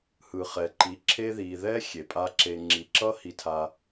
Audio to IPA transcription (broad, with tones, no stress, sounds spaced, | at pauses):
h ɯ˨ χ ɛ˨ ǃ i˨˦ ǁʰ e˧ ð i˨ ð ɛ˦ xʲ e˨ pʼ a˦ ǁ e˧ ŋ͡ǁ i˨ ǁ ʌ˦ h i˧ tʰ a˧